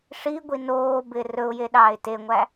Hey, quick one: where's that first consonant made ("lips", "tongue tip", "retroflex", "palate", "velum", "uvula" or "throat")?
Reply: retroflex